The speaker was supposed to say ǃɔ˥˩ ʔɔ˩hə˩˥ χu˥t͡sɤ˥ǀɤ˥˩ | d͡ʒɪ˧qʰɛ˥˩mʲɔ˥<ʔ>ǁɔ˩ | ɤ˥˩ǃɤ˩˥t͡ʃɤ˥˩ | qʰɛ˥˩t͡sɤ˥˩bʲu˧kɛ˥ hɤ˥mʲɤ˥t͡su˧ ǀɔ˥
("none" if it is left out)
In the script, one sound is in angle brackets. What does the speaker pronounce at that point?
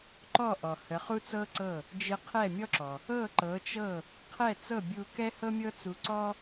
none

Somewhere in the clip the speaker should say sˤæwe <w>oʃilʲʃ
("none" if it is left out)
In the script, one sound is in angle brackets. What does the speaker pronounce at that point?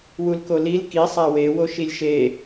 w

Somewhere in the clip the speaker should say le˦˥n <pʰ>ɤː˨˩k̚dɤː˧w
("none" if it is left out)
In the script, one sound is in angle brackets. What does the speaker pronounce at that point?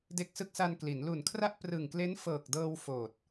f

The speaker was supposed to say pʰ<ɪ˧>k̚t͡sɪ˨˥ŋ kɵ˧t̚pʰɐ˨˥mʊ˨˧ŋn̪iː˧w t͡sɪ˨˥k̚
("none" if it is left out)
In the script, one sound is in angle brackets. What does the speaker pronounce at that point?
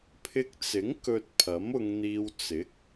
ɪ˧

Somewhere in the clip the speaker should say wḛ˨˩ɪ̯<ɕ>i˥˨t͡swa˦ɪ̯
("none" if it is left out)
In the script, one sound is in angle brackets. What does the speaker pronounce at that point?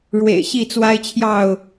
ɕ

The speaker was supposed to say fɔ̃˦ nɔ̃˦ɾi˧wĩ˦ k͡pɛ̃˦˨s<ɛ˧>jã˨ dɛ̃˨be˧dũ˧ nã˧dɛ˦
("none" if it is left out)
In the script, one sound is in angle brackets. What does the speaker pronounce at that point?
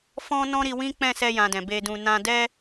ɛ˧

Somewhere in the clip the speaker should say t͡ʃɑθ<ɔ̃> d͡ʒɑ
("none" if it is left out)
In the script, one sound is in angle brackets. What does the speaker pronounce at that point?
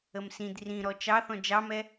ɔ̃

